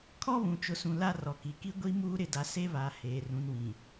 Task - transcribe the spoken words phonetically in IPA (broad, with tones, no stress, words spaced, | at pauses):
kʰɔ˦βũ˨t͡ʃʊ˨sũ˨ la˦rɔ˨ki˨ ki˦ɡʷi˦muː˦ ɾɪ˨da˨ se˦ βa˨ heː˨ rũ˨nwĩ˨